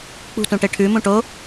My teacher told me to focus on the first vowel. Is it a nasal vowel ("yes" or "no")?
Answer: no